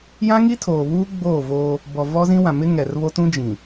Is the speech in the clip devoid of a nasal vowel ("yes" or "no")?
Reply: no